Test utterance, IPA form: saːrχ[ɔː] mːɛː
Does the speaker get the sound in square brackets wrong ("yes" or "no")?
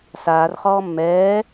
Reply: no